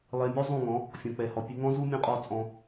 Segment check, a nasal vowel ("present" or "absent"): present